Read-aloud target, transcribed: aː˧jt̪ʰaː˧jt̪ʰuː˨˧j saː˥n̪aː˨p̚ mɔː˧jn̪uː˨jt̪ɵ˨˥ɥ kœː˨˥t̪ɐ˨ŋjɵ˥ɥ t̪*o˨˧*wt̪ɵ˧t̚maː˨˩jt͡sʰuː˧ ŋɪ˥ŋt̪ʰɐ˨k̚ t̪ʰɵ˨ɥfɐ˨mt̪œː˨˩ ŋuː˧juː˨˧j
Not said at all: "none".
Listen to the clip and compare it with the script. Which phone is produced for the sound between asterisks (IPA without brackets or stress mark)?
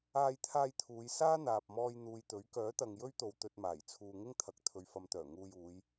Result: o˧